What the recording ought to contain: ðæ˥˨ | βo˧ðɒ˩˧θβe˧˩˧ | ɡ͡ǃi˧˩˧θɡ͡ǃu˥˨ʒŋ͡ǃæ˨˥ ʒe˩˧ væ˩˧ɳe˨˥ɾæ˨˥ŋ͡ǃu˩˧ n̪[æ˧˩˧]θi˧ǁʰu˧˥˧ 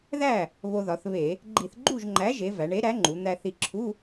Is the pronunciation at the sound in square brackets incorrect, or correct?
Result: incorrect: æ˧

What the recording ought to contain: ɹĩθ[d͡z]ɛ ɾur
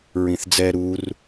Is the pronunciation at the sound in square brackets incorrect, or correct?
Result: correct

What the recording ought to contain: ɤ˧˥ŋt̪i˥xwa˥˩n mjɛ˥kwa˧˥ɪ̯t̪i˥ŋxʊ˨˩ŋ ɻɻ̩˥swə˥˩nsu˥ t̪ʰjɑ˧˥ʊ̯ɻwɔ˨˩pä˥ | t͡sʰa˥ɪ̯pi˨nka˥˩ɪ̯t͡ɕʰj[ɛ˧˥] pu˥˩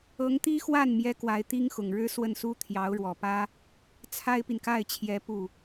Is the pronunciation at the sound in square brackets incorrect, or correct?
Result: correct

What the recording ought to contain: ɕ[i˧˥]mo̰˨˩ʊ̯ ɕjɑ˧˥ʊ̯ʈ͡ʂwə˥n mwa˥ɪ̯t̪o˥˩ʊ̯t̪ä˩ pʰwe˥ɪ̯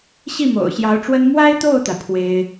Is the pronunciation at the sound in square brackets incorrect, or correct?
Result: incorrect: i˥˩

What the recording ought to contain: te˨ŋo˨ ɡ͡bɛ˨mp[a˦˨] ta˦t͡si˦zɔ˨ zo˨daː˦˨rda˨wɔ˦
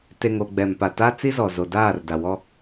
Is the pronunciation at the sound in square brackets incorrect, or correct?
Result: incorrect: a˨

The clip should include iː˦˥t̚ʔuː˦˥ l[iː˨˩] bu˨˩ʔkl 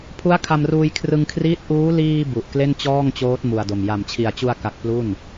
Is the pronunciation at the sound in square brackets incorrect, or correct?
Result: incorrect: iː˧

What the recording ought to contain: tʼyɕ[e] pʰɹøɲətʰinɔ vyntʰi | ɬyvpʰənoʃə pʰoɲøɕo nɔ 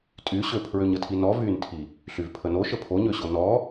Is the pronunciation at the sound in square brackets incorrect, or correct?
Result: incorrect: ø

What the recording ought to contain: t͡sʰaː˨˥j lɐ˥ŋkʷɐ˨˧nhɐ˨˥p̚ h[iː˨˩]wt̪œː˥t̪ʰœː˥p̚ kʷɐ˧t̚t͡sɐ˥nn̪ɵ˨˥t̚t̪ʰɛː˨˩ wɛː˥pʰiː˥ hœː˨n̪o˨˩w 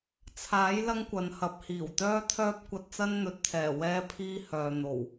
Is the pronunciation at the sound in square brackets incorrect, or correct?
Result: correct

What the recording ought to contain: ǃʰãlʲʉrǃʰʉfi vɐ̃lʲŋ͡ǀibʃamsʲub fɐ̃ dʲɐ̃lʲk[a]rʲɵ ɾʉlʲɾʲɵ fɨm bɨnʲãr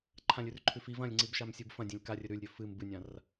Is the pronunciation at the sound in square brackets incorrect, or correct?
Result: correct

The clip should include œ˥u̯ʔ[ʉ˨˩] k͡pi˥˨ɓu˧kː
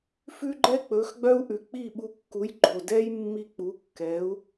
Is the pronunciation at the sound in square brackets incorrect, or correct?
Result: correct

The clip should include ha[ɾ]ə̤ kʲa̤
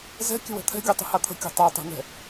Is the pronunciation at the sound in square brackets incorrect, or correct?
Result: incorrect: t̪ʰ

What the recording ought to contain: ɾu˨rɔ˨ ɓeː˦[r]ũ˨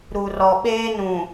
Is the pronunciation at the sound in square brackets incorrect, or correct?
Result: incorrect: n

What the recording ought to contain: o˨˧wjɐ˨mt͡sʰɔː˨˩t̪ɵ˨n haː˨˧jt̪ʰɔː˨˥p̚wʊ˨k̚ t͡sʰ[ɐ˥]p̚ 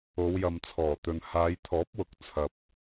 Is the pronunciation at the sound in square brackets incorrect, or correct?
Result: incorrect: ɐ˨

